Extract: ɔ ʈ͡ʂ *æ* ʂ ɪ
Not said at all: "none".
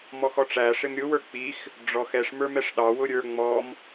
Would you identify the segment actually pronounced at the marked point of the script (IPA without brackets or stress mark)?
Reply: æ